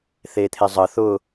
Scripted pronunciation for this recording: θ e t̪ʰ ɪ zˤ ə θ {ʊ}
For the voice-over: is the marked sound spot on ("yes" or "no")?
yes